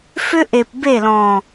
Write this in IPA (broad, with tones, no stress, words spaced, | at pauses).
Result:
fʏ˦ʔe˨pbe˦˨lɔ̃˨